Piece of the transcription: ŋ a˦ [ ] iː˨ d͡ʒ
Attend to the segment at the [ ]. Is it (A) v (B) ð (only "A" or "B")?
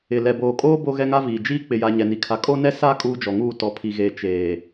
A